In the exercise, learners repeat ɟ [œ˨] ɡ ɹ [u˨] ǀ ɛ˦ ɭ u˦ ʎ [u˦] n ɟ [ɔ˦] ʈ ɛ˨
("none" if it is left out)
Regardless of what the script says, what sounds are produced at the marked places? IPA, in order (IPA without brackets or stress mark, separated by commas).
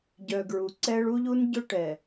œ˨, u˨, u˦, ʊ˦